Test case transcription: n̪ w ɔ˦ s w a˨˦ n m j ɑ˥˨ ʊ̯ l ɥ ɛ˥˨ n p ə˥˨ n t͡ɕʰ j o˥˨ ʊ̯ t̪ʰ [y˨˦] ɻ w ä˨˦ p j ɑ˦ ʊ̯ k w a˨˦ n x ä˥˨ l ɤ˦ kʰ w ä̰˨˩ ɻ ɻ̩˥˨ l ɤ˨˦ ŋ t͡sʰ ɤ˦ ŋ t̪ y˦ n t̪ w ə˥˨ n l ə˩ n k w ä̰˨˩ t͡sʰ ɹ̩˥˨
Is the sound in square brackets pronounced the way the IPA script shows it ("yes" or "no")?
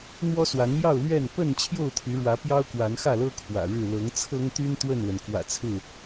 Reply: yes